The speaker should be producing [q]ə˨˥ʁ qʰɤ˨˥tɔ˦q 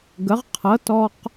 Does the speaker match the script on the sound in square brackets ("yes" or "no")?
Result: no